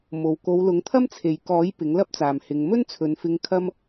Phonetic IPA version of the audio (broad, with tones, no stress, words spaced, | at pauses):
mo˨w ko˨˧wlʊ˨˥ŋt̪ʰɐ˥mt͡sʰe˨j kɔː˨˥j pɪ˨˥ŋlɐ˥p̚t͡saː˨m hɪ˨˧ŋ mɵ˥nt͡sʰɵ˨˧nfɪ˧ŋ kʰɐ˥m